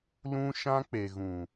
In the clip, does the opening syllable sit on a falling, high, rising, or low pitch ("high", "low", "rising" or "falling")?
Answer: high